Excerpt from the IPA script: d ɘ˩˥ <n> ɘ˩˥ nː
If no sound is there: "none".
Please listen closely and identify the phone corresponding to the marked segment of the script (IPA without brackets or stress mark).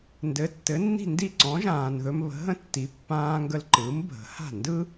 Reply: tː